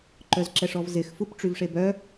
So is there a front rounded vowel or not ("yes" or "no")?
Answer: yes